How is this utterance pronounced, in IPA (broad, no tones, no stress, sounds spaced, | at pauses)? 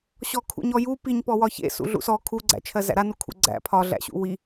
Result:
ɕ ɔ kʰ ṵ ɲ ɔ j u p i ɲ p ɔ w ɒ ç ḛ s ṵ ɮ ṵ s ɔ kʰ u ɡ͡ǀ æ̰ t͡ʃʰ ɜ z æ̰ ɾ a n u kʰ ṵ ɡ͡ǀ æ̰ pʰ ɒ ɮ æ̰ ɕ ṵ w i